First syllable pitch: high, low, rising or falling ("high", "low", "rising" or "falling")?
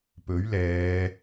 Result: rising